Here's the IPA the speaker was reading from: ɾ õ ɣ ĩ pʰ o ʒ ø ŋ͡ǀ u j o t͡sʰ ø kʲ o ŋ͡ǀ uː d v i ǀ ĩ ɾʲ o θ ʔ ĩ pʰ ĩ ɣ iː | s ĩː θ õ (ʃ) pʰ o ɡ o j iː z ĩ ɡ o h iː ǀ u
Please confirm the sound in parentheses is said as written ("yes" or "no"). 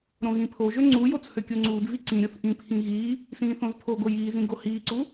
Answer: no